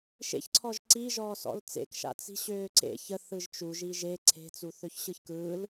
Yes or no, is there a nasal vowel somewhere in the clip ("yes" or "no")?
no